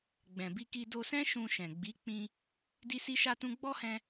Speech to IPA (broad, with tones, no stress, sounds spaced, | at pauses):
ɡ͡b ɛ̃˨ b i˧ k i˧ d o˧ s ɛ̃˦ ʃ ũ˧ ʃ ɛ̃˨ ɡ͡b i˨˦ k͡p ĩ˧ | d i˦ s i˦ ʃ a˦ t ũ˦ ɡ͡b ɔ˦ h ɛ̃˧